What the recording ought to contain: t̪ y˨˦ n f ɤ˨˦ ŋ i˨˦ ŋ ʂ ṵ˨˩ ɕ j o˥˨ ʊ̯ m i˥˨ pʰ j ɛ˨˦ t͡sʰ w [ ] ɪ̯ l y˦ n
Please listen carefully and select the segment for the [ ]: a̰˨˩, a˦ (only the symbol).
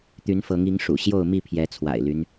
a̰˨˩